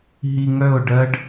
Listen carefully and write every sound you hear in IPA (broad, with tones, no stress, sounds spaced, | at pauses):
ɦ i˧ ŋ œ˦˨ ʊ̯ ɖ ɜ˦ ɖ